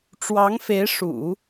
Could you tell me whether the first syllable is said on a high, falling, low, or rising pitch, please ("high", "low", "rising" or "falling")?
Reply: rising